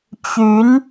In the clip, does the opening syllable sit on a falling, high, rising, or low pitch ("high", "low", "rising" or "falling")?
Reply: rising